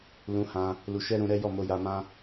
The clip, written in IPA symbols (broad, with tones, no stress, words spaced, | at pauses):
lũ˧hã˧ | lu˧ʃɛ˦ ɾũ˧ɾɛ˦ jɔ˦˨mo˧ja˧mã˦